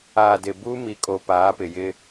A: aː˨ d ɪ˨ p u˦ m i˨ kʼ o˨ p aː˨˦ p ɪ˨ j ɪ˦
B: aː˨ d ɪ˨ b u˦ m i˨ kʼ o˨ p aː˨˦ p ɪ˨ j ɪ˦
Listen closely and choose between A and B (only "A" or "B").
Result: B